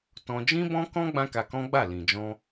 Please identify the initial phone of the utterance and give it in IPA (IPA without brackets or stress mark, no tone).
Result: t